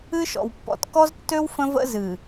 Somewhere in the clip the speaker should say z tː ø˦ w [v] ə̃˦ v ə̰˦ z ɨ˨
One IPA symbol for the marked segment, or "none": f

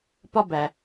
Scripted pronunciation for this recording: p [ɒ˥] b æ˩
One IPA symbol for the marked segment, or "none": ɒ˥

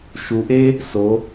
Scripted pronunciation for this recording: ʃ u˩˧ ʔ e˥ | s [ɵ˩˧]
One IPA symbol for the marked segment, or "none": o˩˧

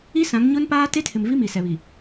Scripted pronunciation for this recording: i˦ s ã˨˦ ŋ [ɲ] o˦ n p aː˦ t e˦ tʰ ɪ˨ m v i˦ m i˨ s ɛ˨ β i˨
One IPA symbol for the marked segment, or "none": ɲ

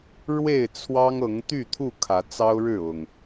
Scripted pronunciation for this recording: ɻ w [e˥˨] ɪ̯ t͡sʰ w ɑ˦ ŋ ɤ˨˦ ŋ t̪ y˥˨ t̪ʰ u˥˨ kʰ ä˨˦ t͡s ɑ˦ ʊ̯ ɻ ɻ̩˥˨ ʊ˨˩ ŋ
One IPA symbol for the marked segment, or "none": e˥˨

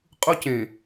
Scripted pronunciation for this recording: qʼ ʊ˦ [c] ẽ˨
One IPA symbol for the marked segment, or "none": c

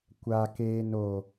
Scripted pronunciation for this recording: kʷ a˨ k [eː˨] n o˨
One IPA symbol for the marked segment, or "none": eː˨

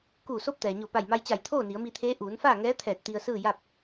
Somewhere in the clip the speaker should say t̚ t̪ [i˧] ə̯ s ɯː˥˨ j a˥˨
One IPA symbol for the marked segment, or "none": i˧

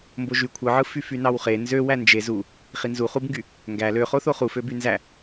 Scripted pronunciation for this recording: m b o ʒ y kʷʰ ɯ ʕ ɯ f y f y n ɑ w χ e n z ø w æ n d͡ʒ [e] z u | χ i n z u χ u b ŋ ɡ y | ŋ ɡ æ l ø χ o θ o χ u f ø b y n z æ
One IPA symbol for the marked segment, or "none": e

